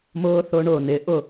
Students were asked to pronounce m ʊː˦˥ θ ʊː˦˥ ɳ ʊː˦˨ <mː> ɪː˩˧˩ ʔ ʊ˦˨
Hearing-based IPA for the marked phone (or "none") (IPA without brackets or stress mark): n